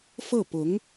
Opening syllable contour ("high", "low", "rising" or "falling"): falling